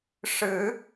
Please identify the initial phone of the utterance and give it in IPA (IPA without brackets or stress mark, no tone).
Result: ʂ